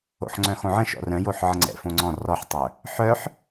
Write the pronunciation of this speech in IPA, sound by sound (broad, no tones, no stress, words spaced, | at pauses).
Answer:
o̰ħŋ͡ǀœ̃xõʕə̃ ʃɔ̰rœ̃joħ ʕəŋ͡ǀɛ̰fõŋ͡ǀɔ̃ rɔħtˤœ | ħœħ